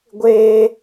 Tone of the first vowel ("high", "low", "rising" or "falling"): high